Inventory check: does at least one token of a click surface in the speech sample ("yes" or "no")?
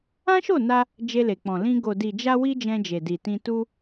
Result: no